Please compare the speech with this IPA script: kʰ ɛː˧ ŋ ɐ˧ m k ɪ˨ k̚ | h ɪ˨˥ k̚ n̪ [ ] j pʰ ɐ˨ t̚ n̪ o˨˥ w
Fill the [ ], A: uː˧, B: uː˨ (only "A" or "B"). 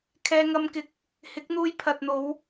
A